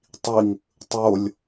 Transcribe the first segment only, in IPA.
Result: tˤ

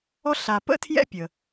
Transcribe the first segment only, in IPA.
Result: ɔ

